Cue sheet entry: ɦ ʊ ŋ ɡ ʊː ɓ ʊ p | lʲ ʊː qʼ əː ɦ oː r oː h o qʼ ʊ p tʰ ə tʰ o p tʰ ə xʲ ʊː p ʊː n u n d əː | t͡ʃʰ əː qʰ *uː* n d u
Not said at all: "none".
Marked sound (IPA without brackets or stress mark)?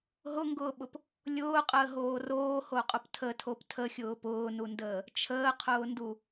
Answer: ʊː